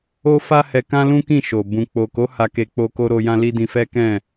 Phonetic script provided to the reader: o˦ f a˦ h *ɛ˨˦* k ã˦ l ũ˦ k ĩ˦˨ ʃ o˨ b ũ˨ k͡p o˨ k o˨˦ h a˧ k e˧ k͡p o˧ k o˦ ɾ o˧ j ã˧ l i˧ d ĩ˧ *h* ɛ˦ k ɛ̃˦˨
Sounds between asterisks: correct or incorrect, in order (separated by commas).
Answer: incorrect, incorrect